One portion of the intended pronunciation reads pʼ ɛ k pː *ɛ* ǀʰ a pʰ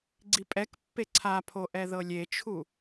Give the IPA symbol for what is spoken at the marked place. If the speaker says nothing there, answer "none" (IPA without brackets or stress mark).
e